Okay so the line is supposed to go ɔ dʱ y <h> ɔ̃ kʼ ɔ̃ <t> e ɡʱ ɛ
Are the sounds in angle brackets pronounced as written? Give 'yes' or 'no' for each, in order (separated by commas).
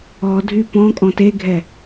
no, yes